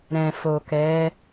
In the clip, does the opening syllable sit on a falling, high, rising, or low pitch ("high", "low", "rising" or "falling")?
low